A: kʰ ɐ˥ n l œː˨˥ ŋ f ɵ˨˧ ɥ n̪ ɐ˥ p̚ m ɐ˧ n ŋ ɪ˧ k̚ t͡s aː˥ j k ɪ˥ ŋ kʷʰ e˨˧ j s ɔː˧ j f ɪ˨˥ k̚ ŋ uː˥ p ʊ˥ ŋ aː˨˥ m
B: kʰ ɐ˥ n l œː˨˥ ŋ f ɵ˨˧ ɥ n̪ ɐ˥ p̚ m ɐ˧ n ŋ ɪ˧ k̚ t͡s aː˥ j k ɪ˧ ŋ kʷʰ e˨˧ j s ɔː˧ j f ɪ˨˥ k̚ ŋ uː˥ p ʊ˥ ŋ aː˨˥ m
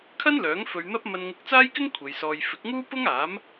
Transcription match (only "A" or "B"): A